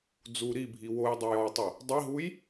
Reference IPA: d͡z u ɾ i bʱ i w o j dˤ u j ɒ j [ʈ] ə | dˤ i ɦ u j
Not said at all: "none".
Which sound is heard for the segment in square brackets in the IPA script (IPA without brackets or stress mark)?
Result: tˤ